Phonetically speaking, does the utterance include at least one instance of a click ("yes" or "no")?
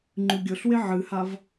yes